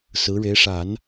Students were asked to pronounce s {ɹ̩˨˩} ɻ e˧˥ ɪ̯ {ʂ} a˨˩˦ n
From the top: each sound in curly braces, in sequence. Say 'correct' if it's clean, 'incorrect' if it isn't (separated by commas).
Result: incorrect, correct